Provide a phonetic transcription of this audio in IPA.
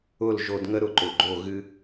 ʊ˦˨l ʒo˧dŋə˦ ɾʊ˧ǃʊ˨ɡ͡ǃo˦˨ ɣɨ˦

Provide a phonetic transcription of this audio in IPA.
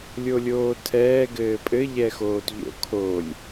lʲolʲoːtʰɛː ɡɘːpʼɘ ʎɛxoːtʎo̰ kʰolʲ

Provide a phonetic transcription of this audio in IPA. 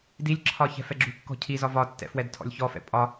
dilʲǁʰɒ çɛ̤fɛɡ͡ǁṳkːɔ̤ cʰizɒ vɒtːɛ̰ fwɛdtʰɔ̰lʲçɔfɛ̰ pʼɒ

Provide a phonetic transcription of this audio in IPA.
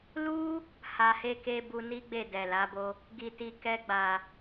lu˦ | ha˧he˦ ke˧ bu˧ni˦ɡ͡be˦˨ dɛ˨la˨˦bo˦ | ɡi˨ti˨kɛ˧ɡ͡ba˨

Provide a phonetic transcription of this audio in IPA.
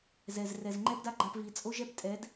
zɛ˨z rɛ˨zŋ͡ǃɛ˦pda˦ɡ͡ǃa˧p vi˨t͡sʼo˦ʒɛ˦p tʼɛ˨˦d

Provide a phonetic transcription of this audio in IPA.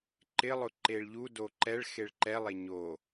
ǃɪlˠʊ ǃeɭʎudo ǃɛɭ xeɭǃɛlˠe ɲo

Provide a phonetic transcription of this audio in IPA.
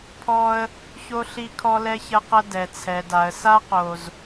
pʰɔ˦ə̯ | ço˦ɬi˦ kʰɔ˦lɛ˦çɐ˦qɐ˦ dɛ˨t͡sʰɛ˨da˨ə̯sa˦ qo˨z

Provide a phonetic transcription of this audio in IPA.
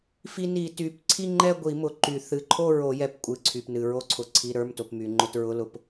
fi˧ni˨˩˦ty˩˧˩p ǀʰi˥˧ŋ͡ǃɛ˥˧ɡʷi˨˩˦mʊ˩ ǃy˨˩˦ θɨ˩˧˩ǃʰo˥˧ɹo˨˩˦ jɛ˨˩˦pkʷʼɨ˩˧˩ǀʰy˩pnɨ˩ ɹo˧ǀʰʊ˩ ǀʰi˩˧˩ɾə˞˩˧˩mto˩p my˩ŋ͡ǃʊ˧t ɹʊ˩˧˩lʊ˧p

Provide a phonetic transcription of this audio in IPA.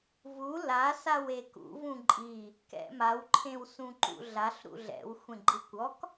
vu lasaw ekṵ vũǃʼi | kɛ̰mawǃʰẽwsũ ǃṵɮaɬ ɾṵɮɛ̰w xʷẽɡ͡ǃɯkʷɔk

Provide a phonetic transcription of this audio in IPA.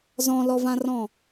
zɔ̃lɔvãrɔ̃

